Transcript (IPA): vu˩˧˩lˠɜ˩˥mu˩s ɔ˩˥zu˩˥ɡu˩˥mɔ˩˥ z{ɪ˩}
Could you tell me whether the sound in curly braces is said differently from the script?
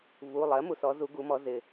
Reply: no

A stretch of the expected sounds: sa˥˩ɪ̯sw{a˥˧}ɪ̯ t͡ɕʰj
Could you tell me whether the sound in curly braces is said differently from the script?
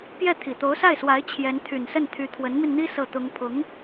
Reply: yes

